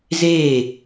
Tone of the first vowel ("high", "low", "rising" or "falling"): falling